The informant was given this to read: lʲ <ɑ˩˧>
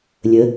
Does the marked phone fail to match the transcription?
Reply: yes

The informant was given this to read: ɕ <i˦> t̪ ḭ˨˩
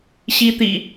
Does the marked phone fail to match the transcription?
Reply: no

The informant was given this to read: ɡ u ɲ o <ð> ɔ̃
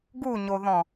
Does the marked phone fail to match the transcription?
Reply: no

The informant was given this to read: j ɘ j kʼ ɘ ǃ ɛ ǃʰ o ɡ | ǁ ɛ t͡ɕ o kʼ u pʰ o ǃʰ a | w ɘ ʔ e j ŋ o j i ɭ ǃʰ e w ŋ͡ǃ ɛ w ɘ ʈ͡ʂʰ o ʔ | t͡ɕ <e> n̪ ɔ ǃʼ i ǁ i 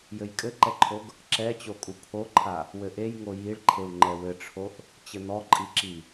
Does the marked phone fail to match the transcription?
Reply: yes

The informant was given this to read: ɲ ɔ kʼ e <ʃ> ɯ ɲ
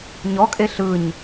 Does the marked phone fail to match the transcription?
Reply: yes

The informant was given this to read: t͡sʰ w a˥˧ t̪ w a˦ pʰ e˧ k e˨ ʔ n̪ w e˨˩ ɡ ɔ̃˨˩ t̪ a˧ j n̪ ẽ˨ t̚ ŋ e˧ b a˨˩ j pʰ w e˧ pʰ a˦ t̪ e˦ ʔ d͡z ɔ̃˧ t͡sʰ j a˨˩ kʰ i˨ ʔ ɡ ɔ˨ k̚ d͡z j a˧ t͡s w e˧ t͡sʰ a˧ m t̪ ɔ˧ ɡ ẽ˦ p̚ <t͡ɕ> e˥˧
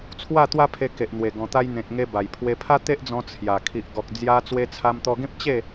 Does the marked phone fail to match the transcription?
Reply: no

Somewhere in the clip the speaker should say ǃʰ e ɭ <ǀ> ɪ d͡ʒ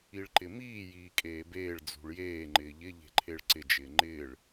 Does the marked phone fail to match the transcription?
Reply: no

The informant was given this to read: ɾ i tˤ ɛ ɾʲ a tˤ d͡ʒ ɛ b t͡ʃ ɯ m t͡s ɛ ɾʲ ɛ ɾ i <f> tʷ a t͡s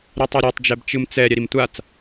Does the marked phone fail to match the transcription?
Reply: yes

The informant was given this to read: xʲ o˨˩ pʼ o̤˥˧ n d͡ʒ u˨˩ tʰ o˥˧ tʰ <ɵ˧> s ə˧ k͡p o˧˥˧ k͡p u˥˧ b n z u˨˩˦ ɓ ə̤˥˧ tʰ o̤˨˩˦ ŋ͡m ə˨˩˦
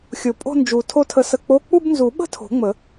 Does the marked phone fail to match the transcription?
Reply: yes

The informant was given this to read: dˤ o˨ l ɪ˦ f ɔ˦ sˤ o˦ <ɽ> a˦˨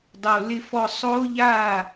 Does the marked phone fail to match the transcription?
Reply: yes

